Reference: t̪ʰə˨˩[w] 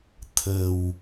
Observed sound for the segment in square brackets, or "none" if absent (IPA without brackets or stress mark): w